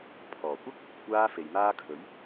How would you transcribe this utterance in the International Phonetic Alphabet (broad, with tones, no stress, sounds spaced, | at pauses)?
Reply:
pʰ ɔː˨˩ kʷ ɐ˥ k̚ | kʷ aː˧ f e˨ j m aː˥ kʰ ɵ˨˥ ɥ